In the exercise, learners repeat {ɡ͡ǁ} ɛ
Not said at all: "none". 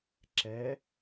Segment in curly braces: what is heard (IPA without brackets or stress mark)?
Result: ǁ